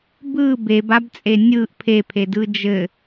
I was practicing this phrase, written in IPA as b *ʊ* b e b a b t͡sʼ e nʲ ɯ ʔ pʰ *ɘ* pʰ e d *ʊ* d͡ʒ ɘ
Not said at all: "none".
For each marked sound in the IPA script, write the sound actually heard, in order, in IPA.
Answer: ɯ, e, ɯ

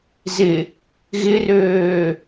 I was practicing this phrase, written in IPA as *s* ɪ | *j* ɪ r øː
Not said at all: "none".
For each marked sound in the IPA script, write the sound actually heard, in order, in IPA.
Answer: z, ɣ

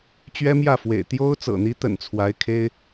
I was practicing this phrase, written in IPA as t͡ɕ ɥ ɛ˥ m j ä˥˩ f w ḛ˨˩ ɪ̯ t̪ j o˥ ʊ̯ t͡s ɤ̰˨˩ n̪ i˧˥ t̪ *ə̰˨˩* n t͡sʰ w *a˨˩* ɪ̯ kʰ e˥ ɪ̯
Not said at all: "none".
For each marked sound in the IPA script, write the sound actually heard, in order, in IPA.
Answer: ə̰˨˩, a˧˥

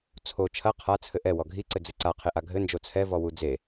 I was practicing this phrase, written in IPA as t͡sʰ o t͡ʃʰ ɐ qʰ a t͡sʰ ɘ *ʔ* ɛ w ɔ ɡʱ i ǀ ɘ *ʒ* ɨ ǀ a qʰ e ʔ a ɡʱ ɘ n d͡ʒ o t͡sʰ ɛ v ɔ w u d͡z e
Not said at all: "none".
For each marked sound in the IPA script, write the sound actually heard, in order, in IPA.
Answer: ʔ, d͡z

